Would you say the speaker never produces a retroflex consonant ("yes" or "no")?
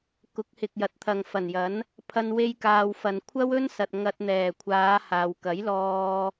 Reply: yes